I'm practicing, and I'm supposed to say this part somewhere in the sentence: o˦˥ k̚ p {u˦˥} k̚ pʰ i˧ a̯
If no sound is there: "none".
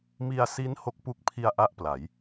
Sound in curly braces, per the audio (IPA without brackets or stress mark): u˦˥